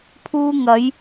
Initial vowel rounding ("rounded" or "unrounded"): rounded